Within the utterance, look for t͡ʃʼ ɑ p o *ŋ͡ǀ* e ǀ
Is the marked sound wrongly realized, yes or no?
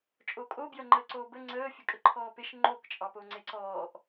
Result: no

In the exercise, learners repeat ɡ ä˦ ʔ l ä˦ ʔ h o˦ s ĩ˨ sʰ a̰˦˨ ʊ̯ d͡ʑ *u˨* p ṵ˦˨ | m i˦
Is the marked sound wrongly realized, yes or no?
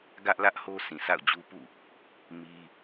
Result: yes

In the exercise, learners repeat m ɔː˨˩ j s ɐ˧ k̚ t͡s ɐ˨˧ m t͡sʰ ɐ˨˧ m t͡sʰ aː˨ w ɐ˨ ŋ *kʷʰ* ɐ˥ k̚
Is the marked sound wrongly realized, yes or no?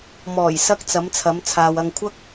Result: no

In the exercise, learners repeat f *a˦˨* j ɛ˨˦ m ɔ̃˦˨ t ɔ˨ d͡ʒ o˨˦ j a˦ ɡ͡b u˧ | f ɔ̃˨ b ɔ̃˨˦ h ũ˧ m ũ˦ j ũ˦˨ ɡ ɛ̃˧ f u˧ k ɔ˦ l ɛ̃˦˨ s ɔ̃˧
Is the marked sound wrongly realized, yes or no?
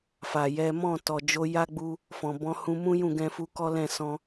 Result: yes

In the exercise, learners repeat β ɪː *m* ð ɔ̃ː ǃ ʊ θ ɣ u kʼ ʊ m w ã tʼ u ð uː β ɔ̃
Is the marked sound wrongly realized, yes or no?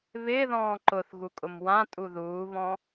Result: yes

